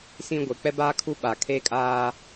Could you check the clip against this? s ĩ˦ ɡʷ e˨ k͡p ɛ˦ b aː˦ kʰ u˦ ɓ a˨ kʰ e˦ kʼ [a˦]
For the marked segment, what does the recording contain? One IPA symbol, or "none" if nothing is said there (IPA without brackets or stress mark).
aː˦